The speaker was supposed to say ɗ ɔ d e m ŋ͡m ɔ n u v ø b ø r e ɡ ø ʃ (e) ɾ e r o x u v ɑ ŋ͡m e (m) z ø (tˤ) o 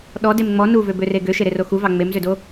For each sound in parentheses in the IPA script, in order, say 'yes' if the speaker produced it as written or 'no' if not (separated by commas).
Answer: yes, yes, no